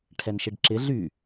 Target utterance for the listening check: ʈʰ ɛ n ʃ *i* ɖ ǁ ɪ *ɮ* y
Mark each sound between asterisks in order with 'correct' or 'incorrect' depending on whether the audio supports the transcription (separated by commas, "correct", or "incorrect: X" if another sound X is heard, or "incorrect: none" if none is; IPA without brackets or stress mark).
incorrect: ɪ, correct